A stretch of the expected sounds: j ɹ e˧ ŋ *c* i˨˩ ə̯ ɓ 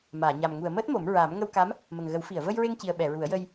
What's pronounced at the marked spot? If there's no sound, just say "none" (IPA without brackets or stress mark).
c